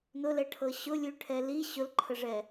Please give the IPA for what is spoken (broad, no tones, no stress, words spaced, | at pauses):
nʊlɛʈʰɤ ɕʊlʲʉʈʰɛ li ɕʊlǃʰəʐɛ